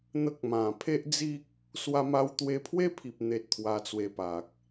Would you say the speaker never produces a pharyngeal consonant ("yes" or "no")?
yes